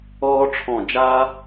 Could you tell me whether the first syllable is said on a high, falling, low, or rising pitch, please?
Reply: high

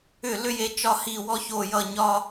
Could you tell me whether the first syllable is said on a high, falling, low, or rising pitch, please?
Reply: falling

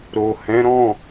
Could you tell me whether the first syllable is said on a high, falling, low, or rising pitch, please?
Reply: low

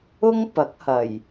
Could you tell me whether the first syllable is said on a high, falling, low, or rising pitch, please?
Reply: high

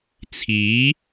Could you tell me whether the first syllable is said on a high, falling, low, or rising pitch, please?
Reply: rising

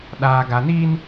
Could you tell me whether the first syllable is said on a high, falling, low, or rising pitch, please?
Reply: low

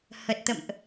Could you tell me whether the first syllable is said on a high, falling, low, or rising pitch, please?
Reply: low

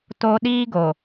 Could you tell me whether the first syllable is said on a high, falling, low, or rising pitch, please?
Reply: high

